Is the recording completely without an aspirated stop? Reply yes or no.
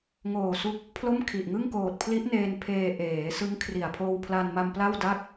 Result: no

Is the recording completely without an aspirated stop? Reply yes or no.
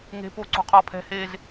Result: no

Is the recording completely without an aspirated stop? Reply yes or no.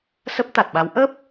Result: yes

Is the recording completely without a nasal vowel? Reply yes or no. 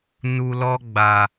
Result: yes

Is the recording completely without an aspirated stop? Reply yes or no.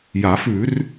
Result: yes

